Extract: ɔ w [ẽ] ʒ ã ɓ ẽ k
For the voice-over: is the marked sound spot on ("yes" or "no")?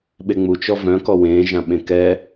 yes